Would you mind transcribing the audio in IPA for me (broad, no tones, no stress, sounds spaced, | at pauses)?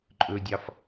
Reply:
ǃʼ ɵ dʲ ɑ f